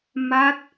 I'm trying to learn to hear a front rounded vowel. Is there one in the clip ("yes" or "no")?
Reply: no